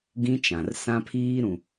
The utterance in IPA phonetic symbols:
ɡ ĩ˦ t͡ʃ ã˨ r s ã˦ pʰ iː˦ ɾ ũ˨

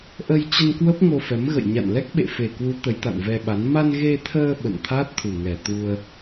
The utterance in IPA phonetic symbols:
ʔ ə˧ j t͡ɕ ə˧ n k w ə˦˥ p̚ ŋ o˧ f ɛ˨˦ m ɣ ə̰˧˨ j ɲ a̰˧˨ n l ɛ˦˥ k̚ ɓ ḛ˧˨ f e˨˩ k w u˨˦ t̪ ə˨˦ j t̪ a̰˧˨ n v ɛ˧ ɓ a˨˦ n m a˧ n ɣ e˧ t̪ʰ əː˧ ɓ ə̰˧˨ n t̪ʰ a˦˥ t̚ t̪ʰ u˨˩ ŋ ɛ˨˩ t̪ u˧ ə̯

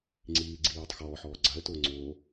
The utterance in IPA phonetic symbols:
ŋ͡ǀ iː ɡ͡ǀ i j o tˤ x ɔː ħ ɔː ɡ͡ǀ a ə̯ t ʊː ŋ͡ǀ oː

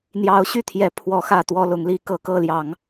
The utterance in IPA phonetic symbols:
n̪ j ɑ˨˦ ʊ̯ ɕ y˥˨ t̪ʰ j ɛ˨˦ pʰ w ɔ˨˦ x ä˥˨ t̪ w ɔ˥˨ l ʊ˨˦ ŋ l i˦ k ɤ˨˦ k ɤ˥˨ l j ɑ˨˦ ŋ

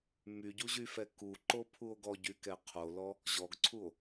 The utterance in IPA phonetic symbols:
m y ɟ u ʑ y f ɛ k u ǃ o pʰ u o̯ ɡ ɔ ɟ y k ɛ qʰ o l ɔ | ʑ ɔ ɡ ǀʰ u o̯

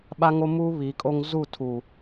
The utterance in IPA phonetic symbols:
ɓ a˦ ŋ o˦ m uː˦ β i˨˦ kʼ o˦ ŋ z u˦˨ tʰ u˨

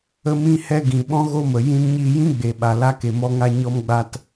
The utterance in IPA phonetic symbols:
ə˧ m ĩ˧ h ɛ˧ ɡ ĩ˨ ɓ ɔ̃˦ ɣ o˦ m ə˨ j ĩ˧ n ɲ iː˧ j ĩ˦ ɡ͡b e˨ ɓ a˨ l a˧ k e˨ m ɔ˧ ŋ a˧ ɲ ɔ˧ m ɡ͡b a˧ t

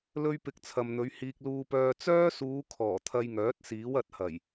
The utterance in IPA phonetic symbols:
l ɵ˥ ɥ p ɪ˧ k̚ t͡sʰ ɐ˨ m n̪ ɵ˨˧ ɥ h iː˨ k̚ l uː˧ p œː˧ t͡s œː˥ s uː˨˧ kʰ ɔː˨˩ t̪ʰ ɐ˧ j ŋ œː˨˥ t̚ s iː˨˥ w ɐ˨˥ t̚ h ɐ˨˩ j

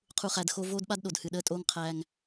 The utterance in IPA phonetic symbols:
qʰ u˨ χ æ˨ d x o˦ v oː˦ d ɓ a˦ d ɗ o˨ d h ɨ˨ ɗ əː˦ tʼ oː˦ ŋ qʰ æː˦ ŋ

